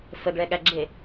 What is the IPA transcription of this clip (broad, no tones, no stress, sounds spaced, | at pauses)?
f ə ɡ ɭ ɛ ɠ æ ɡ͡ǁ e